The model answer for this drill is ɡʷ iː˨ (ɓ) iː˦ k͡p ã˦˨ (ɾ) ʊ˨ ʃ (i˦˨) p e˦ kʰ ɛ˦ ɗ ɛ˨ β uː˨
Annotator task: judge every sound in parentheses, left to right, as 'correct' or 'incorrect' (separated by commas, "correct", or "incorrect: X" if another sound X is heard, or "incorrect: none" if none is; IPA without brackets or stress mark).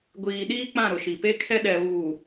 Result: incorrect: ɗ, correct, incorrect: i˨